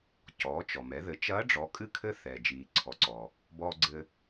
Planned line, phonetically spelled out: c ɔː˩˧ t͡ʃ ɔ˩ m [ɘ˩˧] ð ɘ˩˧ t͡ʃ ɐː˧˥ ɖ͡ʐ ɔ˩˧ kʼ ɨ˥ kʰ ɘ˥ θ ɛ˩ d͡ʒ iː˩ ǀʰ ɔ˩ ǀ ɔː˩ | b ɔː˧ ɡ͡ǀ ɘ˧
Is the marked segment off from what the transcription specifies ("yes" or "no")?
yes